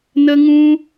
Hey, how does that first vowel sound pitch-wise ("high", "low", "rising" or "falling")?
high